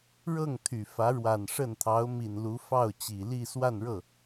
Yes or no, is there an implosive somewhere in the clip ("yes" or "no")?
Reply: no